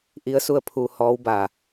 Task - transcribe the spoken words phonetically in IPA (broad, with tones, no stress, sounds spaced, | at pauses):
ʔ i˧˥ ə̯ s u˥˨ ə̯ pʰ uː˧ h ɔː˧˥ w b a˧˩